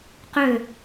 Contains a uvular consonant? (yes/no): yes